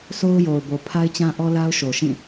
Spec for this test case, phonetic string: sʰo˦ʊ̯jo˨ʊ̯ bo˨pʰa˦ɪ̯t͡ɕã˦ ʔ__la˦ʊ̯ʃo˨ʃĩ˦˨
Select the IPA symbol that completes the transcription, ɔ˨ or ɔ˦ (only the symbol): ɔ˦